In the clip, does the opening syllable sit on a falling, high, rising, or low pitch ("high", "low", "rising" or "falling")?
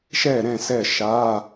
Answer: falling